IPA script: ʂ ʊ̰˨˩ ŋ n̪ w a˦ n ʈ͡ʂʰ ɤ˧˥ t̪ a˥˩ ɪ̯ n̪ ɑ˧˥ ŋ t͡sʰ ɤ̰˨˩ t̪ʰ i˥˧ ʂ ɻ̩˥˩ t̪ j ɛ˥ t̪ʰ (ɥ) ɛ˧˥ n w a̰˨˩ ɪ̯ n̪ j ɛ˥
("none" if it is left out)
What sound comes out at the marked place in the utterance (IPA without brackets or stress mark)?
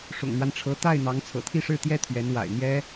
ɥ